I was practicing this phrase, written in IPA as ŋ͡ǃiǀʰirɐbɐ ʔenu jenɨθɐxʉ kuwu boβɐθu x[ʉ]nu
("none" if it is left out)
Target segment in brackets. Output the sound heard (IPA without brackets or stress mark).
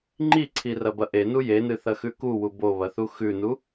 ʉ